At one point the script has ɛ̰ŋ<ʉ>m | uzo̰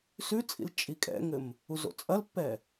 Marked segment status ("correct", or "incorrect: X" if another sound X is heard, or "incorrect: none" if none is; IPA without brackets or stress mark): incorrect: ɘ